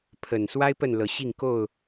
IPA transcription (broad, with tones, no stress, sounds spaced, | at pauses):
pʰ ə˨˩ n s w a˦ ɪ̯ p ə˥˨ n l ɤ˨˦ ɕ i˥˨ ŋ k o˥˨ ʊ̯